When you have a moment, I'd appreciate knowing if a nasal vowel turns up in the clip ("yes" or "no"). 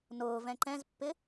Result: yes